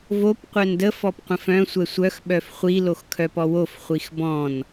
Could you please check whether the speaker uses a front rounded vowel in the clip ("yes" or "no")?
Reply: yes